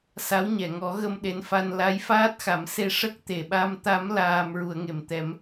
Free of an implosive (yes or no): no